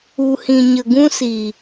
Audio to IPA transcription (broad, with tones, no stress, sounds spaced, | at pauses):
u˨ h ĩ˨ ɲ ə˨ ɡ ũ˦ s iː˨